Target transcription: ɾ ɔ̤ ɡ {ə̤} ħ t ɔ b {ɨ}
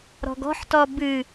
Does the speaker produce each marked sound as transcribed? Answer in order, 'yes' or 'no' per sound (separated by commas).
no, yes